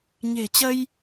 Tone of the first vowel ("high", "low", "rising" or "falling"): low